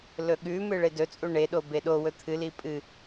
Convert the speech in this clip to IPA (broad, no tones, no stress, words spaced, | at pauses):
lɵɠʉmɨ ɭedɵt͡sʼu ɳeɗo beɗowɵ t̪ʰɨli pʼɨ